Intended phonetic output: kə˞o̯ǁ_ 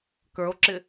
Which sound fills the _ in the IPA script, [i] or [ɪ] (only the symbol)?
ɪ